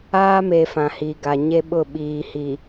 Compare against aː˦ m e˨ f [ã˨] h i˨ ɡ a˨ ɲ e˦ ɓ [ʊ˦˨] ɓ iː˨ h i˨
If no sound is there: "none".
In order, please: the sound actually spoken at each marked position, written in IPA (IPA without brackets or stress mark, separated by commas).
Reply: ã˨, ʊ˦˨